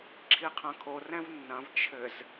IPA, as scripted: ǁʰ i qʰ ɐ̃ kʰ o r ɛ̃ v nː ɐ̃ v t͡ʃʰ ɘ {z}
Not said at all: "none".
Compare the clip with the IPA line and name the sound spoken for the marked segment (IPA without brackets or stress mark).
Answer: z